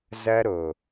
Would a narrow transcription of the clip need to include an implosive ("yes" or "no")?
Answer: no